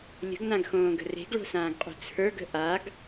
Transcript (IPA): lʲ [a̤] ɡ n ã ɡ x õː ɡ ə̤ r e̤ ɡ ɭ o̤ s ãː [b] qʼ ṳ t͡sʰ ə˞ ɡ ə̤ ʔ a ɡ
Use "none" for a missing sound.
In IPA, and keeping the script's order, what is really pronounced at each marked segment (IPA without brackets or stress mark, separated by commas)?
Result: ə̤, ɡ